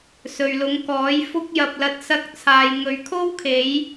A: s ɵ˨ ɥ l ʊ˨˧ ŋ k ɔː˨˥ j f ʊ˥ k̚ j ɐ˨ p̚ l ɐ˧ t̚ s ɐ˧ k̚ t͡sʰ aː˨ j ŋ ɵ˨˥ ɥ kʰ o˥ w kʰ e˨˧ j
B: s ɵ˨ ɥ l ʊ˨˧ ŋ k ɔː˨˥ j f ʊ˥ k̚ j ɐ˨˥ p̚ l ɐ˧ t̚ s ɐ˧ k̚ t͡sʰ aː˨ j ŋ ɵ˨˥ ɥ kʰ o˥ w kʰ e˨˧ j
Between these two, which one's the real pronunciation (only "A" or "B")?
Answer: A